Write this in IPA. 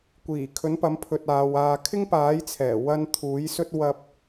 kʷ iː˨˩ kʰ ɵ˨˥ n p ɐ˨˥ m pʰ ɵ˧ t̚ aː˨˧ w aː˧ kʰ ɪ˥ ŋ p aː˨˥ j t͡sʰ ɛː˨˩ w ɐ˥ n t̪ʰ uː˨˥ j s ɵ˥ t̚ w ɐ˥ p̚

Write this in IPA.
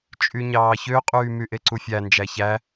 t͡ʃʼ y ɲ ɑː ç ø qʼ yː m y ʔ e ǀ u fʲ æ n d͡ʒ æ ç æ

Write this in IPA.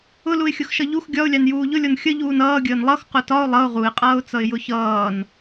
ʊ l u ɪ̯ xʲ ʊ x ʃ ʌ ʎ u x ɡʲ ɒ ʊ̯ lʲ ɑ n j uː ʎ ʊ lʲ ɔ n xʲ ə ʎ uː n ʌː ɡʲ əː n lˠ ʌ x q ʊ t ɒ ʊ̯ lˠ ʌ ʊ̯ ʁ u ɪ̯ qʼ ʌː ʊ̯ t͡s ʌ ɪ̯ j ʊ ç ʌː n

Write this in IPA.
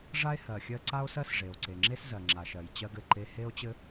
ʐ a˥ e̯ h ɜ˩ xʲ ɜ˥ ǀ a˥ o̯ s ɜ˥ s ʐ e˩ o̯ ǀ e˩ ŋ͡ǁ e˥ s z ɜ˩ ŋ͡ǁ a˩ ʃ ɜ˩ j t͡ɕ ɜ˥ ɡ ɘ˩ ǃ e˥ h e˥ o̯ t͡ɕ ɘ˥

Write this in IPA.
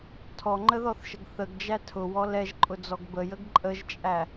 tʰ ɔ ŋ͡ǃ ə ð ɔ θ ʃ ə ɡ θ ə ɡ d͡ʒ æ tʰ ʊ w ɔ l ɛ ʒ ǃʼ ʊ d͡z ɔ ɡ b ə j ə ɡ ǃʼ ə ʒ t͡ʃʼ æ

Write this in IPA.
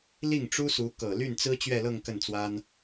l i˥˩ ŋ ʈ͡ʂ u˥ s u˧˥ k ɤ˨˩ l y˥˩ n t͡s ɹ̩˥ t͡ɕ ɥ ɛ˥˧ l ɤ˥˧ ŋ k ə˥˩ n t͡s w a˥ n

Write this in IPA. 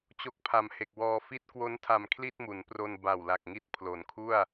t͡ɕ o˦˥ k̚ pʰ a˨˩ m h e˨˩ k̚ w ɔː˧ f i˥˩ t̚ k w o˦˥ n tʰ a˨˩ m kʰ l i˥˩ t̚ m u˩˦ n p r o˧ n b a˨˩ w l a˨˩ k̚ ŋ i˦˥ t̚ pʰ l o˩˦ n kʰ u˥˩ a̯

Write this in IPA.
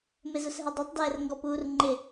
m e z ʊ s ɦ ɛ dˤ ɛ tˤ d ɛː r ŋ ɡ ɔ p uː r ŋ͡ǃ ɪ

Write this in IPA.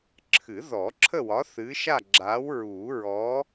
ǁʰ ɨ˨˩˦ ð ɔ˨˩˦ ǁʰ ə˥˨ w ɒ˨˥ θ ɨ˨˥ ʃ a˥˨ ɡ͡ǁ a˨˥ w ɹ uː˨˩˦ ɹ ɔ˨˥

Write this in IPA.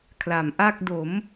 kʰ l a˩˦ m ʔ a˥˩ k̚ d o˩˦ m

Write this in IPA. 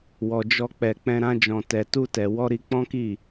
w ɔ˨ d͡ʒ ɔ˧ k͡p ɛ˨ k͡p ɛ̃˧ ɾ ã˧ d͡ʒ ɔ̃˨ t ɛ˨ t u˧ t ɛ˨ w ɔ˧ ɾ i˧ k͡p ɔ̃˦ k i˦˨

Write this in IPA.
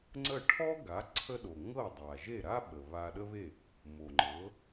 ŋ͡ǀ ə˥˩ ʈʰ ɔ˥ ɡ a˩˥ ǀʰ ə˥ ɗ o˩ ŋ ɤ˥˩ dˤ a˩ ʒ e˥˩ ɾ a˥ ɓ ə˩ β a˧ ɗ ə˥ β e˥˩ | m o˩ ŋ͡ǃ ɤ˩˥

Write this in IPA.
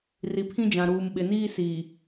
r i˨ pʰ ĩ˦ d͡ʒ ã˨ ɾ uː˨ m ɓ ɪ˨ n iː˦ s iː˨

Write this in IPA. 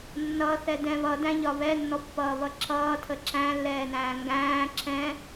nː ʌ θ ɛ d ɛ̃ β ʌ d æ̃ ʎ ɒ β ɛ nː ɔ pː ʌː β ʌ ǁ ʌː tʰ ə ǁ æ̃ lː ɛː n æ̃ː ŋ ɡ æ̃ː ǁ ɛ̃

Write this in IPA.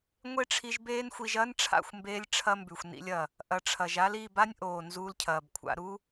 ŋʷ e˦ ʈ͡ʂʰ i˧ ʒ b eː˦ n xʷ i˧ ʒ ɐː˦ n ʈ͡ʂʰ a̰˦˨ xʷ m b eː˧ lʲ ʈ͡ʂʰ ɐ˦ m b ʉ˨ xʷ n ḭ˧ lʲ ɐ˨ | ʔ ɐ˨ ʈ͡ʂʰ ɐ˨ ʒ a˦ l i˦˨ b a˦ nʲ ʔ oː˨ n z uː˧ l cʰ ɐː˨ b kʷʰ a̰˧ ɾ u˦

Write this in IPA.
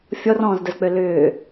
fʲ ɔ r ɔ̃ː z d ə z k͡p ø l ʏː

